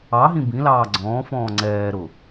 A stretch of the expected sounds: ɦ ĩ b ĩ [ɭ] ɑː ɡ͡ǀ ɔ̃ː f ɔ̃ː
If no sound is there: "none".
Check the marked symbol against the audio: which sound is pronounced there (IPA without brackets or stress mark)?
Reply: l